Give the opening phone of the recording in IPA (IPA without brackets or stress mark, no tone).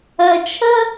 ɜ